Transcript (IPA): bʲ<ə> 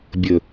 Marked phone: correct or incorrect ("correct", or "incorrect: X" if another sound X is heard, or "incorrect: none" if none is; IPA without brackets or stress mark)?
correct